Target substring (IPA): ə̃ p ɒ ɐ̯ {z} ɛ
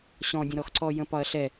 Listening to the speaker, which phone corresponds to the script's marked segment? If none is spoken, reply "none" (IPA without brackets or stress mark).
ɬ